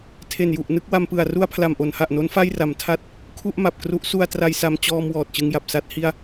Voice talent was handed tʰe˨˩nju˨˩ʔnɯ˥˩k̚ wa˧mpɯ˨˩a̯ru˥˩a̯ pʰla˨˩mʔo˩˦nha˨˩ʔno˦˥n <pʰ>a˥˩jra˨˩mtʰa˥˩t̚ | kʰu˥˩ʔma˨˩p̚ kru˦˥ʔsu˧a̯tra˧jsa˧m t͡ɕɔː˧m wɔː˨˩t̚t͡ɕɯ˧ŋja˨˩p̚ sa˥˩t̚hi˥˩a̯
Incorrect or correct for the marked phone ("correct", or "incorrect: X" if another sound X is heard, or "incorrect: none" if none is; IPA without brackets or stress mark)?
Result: incorrect: f